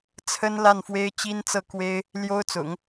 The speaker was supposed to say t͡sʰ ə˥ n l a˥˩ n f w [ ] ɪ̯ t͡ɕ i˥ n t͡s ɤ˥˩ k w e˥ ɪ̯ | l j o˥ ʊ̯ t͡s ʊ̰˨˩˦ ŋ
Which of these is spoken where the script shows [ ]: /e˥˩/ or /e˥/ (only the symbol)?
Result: e˥